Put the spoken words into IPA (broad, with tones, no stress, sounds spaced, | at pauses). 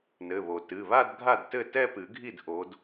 n ɘ˩˧˩ β o˩ t ɨ˩˧˩ β a˥˧ d ɡʱ a˥˩ d t ɘ˥˩ t ɛ˥˧ p ɨ˨˩˦ ɡʱ i˥˩ d ʔ o˨˦ d